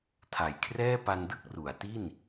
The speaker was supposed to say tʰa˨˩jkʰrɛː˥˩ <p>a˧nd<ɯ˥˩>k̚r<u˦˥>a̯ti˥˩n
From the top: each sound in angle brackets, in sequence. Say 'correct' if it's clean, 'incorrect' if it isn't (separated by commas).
correct, correct, incorrect